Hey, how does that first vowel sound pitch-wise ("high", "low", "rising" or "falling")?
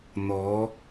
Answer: rising